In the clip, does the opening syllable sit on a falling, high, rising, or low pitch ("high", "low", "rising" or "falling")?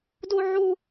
high